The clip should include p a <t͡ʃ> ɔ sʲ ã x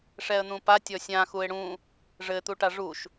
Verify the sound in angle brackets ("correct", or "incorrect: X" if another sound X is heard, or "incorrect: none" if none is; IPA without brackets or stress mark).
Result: incorrect: tʲ